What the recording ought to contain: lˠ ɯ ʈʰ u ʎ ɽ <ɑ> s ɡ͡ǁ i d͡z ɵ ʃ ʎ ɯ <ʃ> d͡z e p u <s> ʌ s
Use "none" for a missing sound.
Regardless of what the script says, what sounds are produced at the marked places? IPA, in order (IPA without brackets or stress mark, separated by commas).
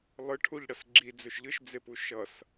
ʌ, ʃ, ʃ